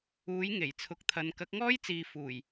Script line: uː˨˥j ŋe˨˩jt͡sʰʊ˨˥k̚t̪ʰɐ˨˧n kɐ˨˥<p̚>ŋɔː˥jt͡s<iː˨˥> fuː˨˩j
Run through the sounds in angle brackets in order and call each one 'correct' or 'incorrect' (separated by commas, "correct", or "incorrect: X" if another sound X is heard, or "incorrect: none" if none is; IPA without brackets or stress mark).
incorrect: k̚, incorrect: iː˨